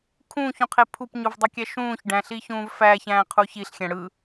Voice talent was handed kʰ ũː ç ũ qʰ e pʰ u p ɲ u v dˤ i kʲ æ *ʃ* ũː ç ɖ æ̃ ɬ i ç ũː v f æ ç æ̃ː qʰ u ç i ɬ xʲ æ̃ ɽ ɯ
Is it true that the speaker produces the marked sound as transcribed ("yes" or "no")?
yes